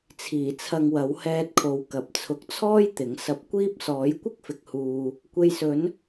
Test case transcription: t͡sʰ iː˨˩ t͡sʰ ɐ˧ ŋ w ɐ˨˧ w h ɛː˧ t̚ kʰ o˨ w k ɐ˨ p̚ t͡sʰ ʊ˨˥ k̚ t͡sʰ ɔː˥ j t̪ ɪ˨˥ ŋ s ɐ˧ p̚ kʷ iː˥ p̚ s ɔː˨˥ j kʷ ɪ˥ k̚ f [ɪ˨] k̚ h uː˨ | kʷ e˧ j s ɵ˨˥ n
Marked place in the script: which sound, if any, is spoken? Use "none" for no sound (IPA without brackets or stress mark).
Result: ɪ˨